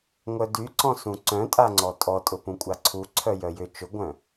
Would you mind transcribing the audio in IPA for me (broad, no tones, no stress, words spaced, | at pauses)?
ŋʷœdyǀɔ̃sũ ǀœ̃tʼa ŋ͡ǀɔtʼɔ tʼʊpũkʷʼaǀʰu ǀʰœjœjʏ t͡ʃʊɡʷœ̃